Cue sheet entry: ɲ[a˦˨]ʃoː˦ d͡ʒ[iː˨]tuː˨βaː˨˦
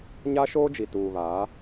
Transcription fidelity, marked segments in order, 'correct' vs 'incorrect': incorrect: a˦, incorrect: i˨

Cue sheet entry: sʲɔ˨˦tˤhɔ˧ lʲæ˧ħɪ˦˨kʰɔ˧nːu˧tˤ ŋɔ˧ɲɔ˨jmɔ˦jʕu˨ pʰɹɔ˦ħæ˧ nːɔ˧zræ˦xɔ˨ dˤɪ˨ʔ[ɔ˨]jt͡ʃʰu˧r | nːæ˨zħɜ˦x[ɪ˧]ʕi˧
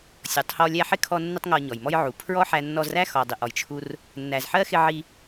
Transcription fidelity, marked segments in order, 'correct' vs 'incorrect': correct, correct

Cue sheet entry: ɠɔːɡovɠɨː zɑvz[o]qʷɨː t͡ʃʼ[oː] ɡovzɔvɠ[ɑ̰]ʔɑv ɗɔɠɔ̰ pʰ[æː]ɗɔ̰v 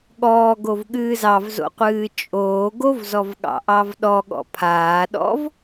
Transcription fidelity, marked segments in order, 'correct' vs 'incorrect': incorrect: o̰, correct, correct, incorrect: aː

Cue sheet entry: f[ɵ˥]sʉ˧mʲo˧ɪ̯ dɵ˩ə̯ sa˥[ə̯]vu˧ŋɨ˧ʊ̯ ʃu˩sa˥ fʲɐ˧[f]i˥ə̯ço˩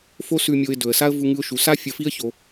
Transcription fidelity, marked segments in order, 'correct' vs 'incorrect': incorrect: o˥, correct, correct

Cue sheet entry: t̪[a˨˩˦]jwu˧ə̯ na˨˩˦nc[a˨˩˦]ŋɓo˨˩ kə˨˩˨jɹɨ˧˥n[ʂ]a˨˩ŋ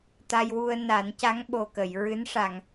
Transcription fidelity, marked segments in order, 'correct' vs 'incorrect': incorrect: a˧, incorrect: a˧˥, correct

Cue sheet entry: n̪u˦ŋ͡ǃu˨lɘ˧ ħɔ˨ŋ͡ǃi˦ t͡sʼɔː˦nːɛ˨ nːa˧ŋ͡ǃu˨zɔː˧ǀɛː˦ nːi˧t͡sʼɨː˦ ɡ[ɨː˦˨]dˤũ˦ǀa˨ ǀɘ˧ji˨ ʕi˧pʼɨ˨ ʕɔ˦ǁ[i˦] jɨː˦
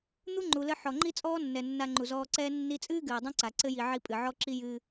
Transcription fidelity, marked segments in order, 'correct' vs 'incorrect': incorrect: ɨː˨, correct

